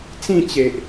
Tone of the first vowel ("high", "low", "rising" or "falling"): falling